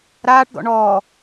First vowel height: low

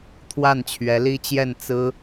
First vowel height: low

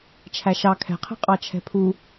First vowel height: low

